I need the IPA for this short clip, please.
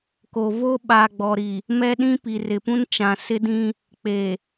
k o˨ v o˦ ɓ a˨ ɡ͡b ɔ˨ ɾ i˨ | m ɛ˦ ɗ ĩ˦ p i˨ r ɪ˨ p ũ˦ n t͡ʃ ã˨ s ɪ˦ d ĩ˦ | k͡p e˨

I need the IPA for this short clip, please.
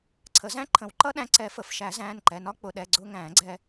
ǀʰ ə˨˩˦ z æ̃˦˥ ǃʰ ə̃˨˩˦ w ǃ ʌ˦˥ ɗ æ̃˧ ǀ ɛ˨˩˦ f ə˩˧˩ f ʃ æ˨˩˦ z æ̃ː˩˧˩ n ǃ ɛ˩˧˩ n ɒ˦˥ k͡p ʊ˩˧˩ ɗ ɛ˩˧˩ ɡ͡ǀ ʊː˧ ŋ æ̃ː˨˩˦ ɡ͡ǀ ɛ˧

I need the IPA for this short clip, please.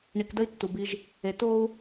ɳ i˨ k d ə˦ i̯ tː u˨ b i˦ ʒ | e˨ t o˦ u̯

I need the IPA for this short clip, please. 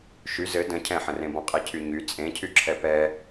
ʃ y z ɘ d ə̃ cʰ ɛ̃ ħ ə̃ r ẽ b ɔ̃ qʼ i cʰ y ɲ y t͡sʼ ẽ cʰ y ǁʰ ɛ p ɛ

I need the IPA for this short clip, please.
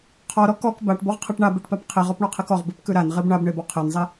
qʰ ɔ ɾ ɔ k ɔ k b a ʈ b ɔ ʁ qʰ e ʈ ɳ a b e ʈ p a p qʰ i ʁ ɔ p ɳ ɔ qʰ i k ɔ ʁ b i p k ʉ ɾ a n ʁ i b ɳ a b ɳ e b ɔ qʰ e n zˤ i

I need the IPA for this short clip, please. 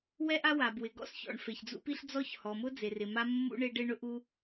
w ɛ˥ ʔ a˥ w a˩ b w ɪ˩ ɡ ɔ̰˥ s ç ɔ̰˩ ɳ f e˩ ç d͡z ṵ˥ p i˥ ɬ d͡z ɔ˥ ç h ɔ˩ m ʊ˥ d͡z e˩ r ɪ˩ m a˥ mː ṵ˥ ɳ e˥ ɖ e˥ ɳ ʊ˥ ʔ u˥

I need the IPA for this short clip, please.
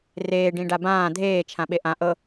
r eː ɖ ĩ ɖ a b ãː dʱ eː t͡ʃʰ ã ɓ e ʔ ã ʔ ɤ

